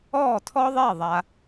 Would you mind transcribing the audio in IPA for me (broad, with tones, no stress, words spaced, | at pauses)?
ɔː˥˧tʰɔ˥ðˤe˥˧ ðˤa˥